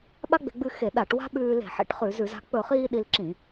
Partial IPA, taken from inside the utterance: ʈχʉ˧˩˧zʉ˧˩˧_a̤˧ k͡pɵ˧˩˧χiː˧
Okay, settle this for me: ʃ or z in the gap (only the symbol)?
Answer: z